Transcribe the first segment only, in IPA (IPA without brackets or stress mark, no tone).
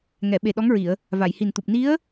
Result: ŋ